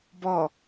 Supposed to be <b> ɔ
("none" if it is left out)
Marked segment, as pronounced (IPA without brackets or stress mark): b